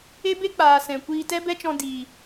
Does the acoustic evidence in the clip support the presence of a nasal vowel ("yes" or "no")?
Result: yes